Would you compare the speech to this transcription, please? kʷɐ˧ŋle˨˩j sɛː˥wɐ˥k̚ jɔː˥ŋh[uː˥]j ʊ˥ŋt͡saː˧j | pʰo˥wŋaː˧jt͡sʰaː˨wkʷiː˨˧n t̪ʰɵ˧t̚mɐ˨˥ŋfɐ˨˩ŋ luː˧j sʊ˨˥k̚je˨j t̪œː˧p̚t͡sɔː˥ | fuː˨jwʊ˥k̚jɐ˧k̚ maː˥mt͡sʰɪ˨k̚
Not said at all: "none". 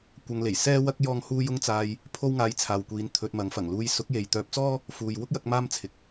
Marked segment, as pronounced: uː˥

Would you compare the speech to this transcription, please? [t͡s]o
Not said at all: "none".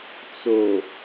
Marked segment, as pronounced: t͡s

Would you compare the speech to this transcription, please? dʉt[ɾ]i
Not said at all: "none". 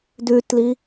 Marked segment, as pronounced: l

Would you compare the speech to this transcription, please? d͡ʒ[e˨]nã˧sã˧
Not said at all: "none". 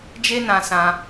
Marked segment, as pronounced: e˦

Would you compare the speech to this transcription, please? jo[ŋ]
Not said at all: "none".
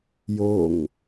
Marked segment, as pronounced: ŋ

